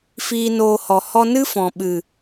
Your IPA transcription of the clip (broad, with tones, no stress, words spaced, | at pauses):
fiː˧noː˧hɔ˨ hɔ˧nɨ˦ fɔ̃˨ɓɨ˨